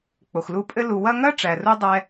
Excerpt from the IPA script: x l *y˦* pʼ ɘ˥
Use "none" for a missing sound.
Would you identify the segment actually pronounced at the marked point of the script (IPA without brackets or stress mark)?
u˦